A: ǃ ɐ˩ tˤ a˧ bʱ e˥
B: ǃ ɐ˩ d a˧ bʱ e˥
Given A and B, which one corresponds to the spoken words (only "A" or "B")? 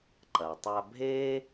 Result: A